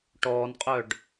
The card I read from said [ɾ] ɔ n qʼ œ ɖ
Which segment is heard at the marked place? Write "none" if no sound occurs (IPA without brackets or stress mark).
ʈ